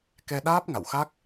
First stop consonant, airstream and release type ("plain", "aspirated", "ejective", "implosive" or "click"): plain